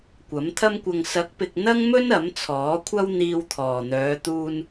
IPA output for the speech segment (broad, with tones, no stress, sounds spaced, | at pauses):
kʷ ɐ˨˥ m t̪ʰ ɐ˥ m kʷ ɐ˧ ŋ s ɐ˨˥ k̚ p ɪ˨ k̚ n̪ ɐ˥ ŋ m ɵ˥ n ɐ˨˥ m t͡sʰ ɔː˨˥ kʷʰ ɐ˥ w n̪ iː˧ w t̪ʰ ɔː˨˩ n̪ œː˨˧ t̪ uː˧ n